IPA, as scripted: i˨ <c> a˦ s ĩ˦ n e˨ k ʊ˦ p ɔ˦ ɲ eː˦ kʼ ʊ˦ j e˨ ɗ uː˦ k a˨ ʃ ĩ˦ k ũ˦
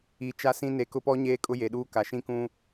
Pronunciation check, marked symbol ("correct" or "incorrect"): incorrect